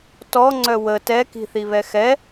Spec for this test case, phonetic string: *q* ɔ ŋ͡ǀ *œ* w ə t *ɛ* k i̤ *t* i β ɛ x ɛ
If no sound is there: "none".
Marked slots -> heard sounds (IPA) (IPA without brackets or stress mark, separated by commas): t, œ, ɛ, θ